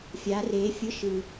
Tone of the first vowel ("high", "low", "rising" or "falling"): rising